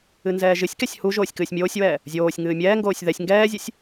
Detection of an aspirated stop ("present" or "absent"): absent